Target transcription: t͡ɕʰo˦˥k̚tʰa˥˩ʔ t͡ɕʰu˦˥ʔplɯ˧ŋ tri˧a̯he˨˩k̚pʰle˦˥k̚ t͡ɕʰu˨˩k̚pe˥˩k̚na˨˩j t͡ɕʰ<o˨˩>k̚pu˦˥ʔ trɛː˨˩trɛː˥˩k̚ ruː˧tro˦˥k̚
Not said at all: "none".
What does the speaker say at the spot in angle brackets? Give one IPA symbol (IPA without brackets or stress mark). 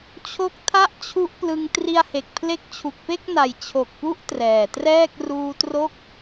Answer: o˨˩